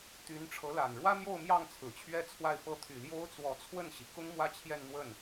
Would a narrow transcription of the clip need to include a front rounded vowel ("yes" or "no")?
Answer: yes